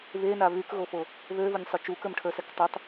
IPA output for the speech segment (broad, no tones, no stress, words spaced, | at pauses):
βena βykɣofo | βøvənʲsˤø t͡ʃukə˞mʈʰə˞sɛk tˤøtˤ